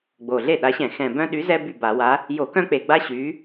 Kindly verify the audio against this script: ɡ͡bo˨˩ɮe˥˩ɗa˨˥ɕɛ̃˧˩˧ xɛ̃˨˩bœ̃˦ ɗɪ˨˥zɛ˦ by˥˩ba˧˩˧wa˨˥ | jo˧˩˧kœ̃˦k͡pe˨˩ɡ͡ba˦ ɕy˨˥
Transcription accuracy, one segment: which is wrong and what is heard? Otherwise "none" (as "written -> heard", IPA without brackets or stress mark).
ɪ˨˥ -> y˨˥